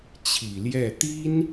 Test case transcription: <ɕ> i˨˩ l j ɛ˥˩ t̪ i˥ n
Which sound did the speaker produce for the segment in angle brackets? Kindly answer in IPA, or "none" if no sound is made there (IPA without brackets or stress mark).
t͡ɕʰ